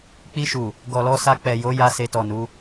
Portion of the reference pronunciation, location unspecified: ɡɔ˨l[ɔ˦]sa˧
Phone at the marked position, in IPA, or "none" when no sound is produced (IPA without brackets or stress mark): ɔ˧